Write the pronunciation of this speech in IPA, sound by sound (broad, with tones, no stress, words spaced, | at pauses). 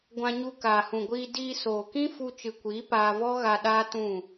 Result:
ɡʷã˧ɲu˧ kaː˨hũ˨ɡʷiː˧ diː˧soː˨kĩ˦ fu˧t͡ʃɨ˨kʷiː˨˦ paː˧vɔ˦ ɣa˧ ɗaː˦tũ˦˨